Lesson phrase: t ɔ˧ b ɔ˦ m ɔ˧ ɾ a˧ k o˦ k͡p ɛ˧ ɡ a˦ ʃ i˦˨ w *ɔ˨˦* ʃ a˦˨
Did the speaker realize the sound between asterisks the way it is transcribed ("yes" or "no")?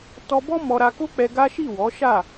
yes